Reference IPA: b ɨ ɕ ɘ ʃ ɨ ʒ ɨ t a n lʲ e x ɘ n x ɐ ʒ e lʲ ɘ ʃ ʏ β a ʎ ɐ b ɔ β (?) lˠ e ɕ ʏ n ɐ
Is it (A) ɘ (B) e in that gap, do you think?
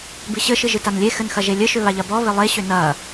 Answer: A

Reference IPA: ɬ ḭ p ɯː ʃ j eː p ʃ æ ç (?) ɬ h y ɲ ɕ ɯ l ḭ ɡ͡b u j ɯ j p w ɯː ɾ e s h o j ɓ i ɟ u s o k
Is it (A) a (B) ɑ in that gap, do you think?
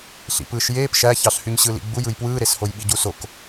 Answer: B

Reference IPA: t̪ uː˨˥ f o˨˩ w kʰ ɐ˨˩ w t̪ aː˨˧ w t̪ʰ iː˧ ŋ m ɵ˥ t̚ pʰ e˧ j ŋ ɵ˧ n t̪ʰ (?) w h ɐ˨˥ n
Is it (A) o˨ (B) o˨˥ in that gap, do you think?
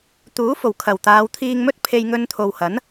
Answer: A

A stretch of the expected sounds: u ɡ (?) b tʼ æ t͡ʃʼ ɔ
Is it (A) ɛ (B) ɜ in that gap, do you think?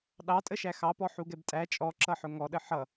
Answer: A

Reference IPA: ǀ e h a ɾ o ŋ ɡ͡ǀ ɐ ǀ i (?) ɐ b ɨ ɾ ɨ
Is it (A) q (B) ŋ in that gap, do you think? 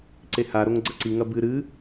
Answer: B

